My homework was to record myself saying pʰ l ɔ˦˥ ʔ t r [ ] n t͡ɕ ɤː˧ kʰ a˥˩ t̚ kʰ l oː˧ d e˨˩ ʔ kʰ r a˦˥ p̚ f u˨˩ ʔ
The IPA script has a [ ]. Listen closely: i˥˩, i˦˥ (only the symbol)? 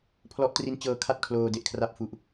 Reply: i˦˥